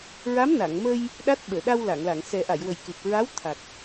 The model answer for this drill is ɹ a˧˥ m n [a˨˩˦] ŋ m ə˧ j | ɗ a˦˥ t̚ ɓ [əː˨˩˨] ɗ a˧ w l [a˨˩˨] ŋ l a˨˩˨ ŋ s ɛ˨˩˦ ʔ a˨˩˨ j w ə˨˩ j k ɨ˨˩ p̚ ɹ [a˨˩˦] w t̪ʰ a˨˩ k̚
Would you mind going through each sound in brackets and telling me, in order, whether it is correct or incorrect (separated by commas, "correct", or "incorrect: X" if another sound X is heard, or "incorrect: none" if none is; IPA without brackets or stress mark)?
incorrect: a˨˩˨, correct, correct, incorrect: a˧˥